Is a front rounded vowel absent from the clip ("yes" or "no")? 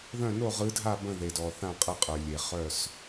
no